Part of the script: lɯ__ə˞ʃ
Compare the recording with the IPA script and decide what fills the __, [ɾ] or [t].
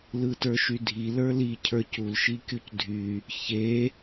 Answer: t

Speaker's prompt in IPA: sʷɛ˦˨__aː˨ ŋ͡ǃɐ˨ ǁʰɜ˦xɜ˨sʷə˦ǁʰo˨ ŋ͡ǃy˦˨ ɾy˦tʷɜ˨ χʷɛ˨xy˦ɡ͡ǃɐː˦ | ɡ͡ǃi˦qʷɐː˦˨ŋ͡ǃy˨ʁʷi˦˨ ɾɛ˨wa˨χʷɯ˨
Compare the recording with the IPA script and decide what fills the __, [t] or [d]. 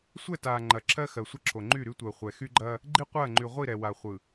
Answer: t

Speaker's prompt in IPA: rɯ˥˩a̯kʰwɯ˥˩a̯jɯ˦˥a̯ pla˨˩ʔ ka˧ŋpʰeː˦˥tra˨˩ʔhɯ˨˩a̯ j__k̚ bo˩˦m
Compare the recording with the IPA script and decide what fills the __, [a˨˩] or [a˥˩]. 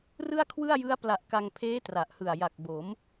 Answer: a˨˩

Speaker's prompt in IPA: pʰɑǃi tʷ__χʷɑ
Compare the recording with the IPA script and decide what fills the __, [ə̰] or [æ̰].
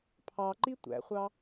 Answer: æ̰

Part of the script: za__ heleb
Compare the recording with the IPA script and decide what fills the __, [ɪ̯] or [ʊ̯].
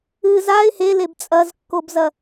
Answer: ɪ̯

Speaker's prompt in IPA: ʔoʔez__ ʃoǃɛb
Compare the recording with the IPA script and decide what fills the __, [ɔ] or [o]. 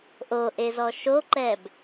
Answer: ɔ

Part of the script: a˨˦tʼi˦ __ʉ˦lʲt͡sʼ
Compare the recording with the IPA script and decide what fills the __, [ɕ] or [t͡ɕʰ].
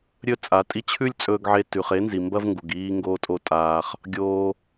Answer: t͡ɕʰ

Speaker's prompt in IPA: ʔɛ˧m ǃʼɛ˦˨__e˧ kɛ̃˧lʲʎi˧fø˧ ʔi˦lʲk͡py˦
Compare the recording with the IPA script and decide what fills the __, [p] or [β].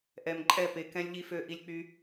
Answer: p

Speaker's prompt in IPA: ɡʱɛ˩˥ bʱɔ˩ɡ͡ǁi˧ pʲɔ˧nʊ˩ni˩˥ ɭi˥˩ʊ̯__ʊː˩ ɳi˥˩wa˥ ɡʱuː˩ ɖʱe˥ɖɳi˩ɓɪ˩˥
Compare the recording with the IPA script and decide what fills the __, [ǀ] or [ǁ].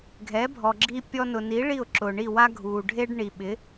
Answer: ǁ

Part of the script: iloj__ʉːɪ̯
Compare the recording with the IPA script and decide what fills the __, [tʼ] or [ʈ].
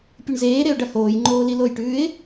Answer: ʈ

